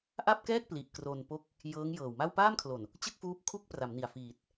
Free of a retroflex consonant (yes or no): yes